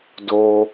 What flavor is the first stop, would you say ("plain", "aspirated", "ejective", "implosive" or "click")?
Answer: plain